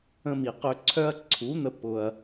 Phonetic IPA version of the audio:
ə̃˧mi˨qø˧ǀʰœ˦ɐ̯ ǀʰu˨˦n̪ə˧ pʊ˧ɐ̯

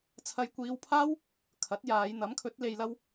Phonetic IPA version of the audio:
t͡sʰɐ˧jkʷiː˧wpʰaː˥w | kʰɐ˨˥t̚jaː˨˧jn̪ɐ˨˥mkʰɵ˨˥t̚ le˧jlɐ˥w

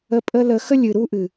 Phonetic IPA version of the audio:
ə˧pʼə˦lə˧ xə˦lʲɨ˨ɾu˧ʔɨ˨

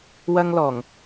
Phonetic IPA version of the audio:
wɐ˥ŋlɔː˨˩ŋ

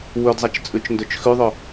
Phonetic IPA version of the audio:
wɵdzˤɐt͡ʃt͡sʼʉt͡ʃndɵt͡ʃ xʉðˤɵ

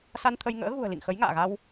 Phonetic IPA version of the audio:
sa˧nt̪ʰə˧jŋə̰ː˧˥ ɣṳ˨˩ə̯lḭ˧˨ŋ xə˨˦jŋa̰ː˧˨ɣa˧w

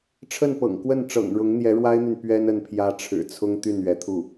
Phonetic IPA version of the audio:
ʈ͡ʂʰə˥˩npɤ̰˨˩ŋkwə˥˩nʈ͡ʂɤ̰˨˩ŋ ɻʊ˧˥ŋn̪jɛ˧˥ɻwa˥ɪ̯n̪y˨n pɥɛ˥n ə˥˩npʰjä˥ʈ͡ʂʰɻ̩˨˩ t͡sʰʊ˥ŋt̪y˥˩n ɥɛ˧˥t̪ʰu˥˩

